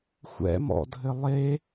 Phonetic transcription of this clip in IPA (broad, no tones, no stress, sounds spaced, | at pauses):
xʷ ɛ̰ m ɔ̰ dʱ ɘ lˠ e